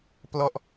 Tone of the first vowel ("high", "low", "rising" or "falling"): falling